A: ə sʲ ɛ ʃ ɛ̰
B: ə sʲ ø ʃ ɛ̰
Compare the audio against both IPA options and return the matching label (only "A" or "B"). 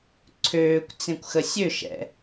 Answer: B